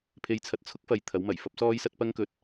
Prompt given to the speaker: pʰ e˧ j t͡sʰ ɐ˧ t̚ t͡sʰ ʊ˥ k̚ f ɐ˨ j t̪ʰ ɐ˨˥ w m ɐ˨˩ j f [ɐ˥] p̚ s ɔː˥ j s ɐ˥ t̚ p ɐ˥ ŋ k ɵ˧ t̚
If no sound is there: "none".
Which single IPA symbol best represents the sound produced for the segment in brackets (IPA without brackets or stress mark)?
ɐ˥